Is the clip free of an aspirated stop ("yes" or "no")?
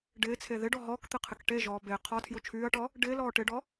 no